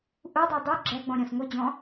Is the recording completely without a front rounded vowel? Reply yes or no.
no